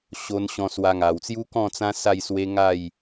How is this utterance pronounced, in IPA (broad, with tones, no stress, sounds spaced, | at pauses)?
ɕ o˧ n ɕ ɔ̃˧ s w a˧ ŋ a˨˩ w t͡s j u˦ k ɔ̃˥˧ t͡s ã˦ s a˥˧ j s w e˦ ŋ a˥˧ j